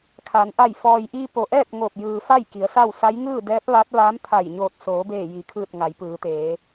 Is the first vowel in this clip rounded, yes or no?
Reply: no